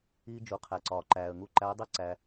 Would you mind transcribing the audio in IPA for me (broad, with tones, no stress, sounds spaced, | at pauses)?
iː˧ d͡ʒ u˩ qʰ æ˩ ǀ ɒː˩ ǃ æː˩ ə̯ ŋ u˧ ǃ æ˧˥ ɪ̯ dˤ i˥ ǀ æ˧